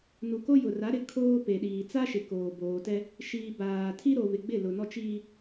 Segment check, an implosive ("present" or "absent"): present